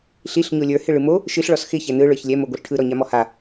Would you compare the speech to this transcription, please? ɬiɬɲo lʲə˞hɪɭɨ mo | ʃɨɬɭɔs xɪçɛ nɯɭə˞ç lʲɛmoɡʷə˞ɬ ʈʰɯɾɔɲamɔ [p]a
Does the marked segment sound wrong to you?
yes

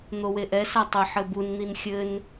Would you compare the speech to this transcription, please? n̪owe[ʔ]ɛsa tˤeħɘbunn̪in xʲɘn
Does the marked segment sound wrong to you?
no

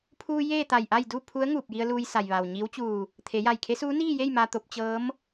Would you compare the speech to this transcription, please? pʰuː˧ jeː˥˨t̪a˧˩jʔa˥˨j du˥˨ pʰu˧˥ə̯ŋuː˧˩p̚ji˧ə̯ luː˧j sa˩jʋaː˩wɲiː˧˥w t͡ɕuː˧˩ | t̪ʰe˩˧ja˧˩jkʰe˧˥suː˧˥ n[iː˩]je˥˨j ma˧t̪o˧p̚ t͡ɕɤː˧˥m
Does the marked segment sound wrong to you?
yes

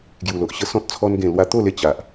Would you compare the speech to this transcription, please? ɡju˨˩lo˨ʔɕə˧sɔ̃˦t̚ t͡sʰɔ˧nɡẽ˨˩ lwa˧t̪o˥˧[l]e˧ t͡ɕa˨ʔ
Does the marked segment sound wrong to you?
no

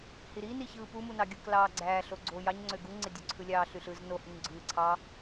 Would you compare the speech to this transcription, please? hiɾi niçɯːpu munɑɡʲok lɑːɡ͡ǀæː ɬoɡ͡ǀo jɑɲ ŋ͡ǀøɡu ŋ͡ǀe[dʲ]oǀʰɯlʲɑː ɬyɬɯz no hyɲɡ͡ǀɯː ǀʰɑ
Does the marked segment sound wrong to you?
no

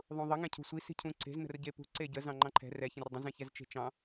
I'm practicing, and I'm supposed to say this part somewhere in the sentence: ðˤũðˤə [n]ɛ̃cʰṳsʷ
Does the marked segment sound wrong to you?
yes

